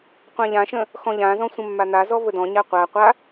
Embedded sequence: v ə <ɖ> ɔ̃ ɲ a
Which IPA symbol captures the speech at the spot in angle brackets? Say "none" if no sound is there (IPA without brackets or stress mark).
d